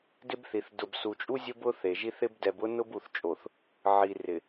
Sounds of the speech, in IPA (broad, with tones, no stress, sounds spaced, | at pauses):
d ɪ˦ b θ i˨ θ d ʊ˨ b s u˨ t͡ʃʼ u˦ zʲ ʊ˦ b ʊ˦ θ e˨ ʒ i˦ θ ɪ˦ b d ɛ˨ b ʊ˦ n ʊ˦ b u˨ θ t͡ʃʼ o˨ θ | ʕ i˨ r ɪ˨